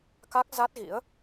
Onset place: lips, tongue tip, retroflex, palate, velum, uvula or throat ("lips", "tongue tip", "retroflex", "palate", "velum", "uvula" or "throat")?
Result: velum